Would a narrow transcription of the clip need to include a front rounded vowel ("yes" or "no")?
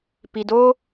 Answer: no